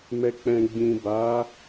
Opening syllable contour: low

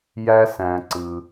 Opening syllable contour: high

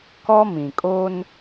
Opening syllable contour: high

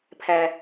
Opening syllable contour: low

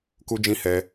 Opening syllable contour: high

